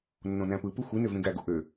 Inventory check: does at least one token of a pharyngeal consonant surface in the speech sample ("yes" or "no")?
no